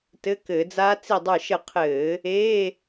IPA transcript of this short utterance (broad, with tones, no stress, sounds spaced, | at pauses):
t ɘ˧˥˧ k ɘː˧˩˧ d͡z aː˦˥ t͡s i˧˩ dˤ ə˞˧˩ ʃ ə˧˩ qʰ ɘː˧˩˧ | e˧˥˧